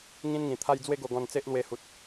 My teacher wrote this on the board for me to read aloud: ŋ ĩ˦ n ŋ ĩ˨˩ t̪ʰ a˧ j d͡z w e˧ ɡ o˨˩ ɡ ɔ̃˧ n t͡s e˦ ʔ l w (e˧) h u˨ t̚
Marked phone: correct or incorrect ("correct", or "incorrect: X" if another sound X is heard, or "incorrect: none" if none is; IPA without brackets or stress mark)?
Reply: correct